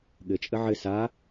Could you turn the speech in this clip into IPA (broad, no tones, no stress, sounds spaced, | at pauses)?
ɠ ɘ t͡ʃʼ ə ʕ ɘ s a